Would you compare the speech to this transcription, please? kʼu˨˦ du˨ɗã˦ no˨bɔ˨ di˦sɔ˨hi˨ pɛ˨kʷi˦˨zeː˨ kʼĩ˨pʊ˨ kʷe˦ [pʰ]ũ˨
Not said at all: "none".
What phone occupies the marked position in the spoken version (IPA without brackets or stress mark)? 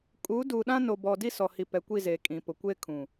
kʰ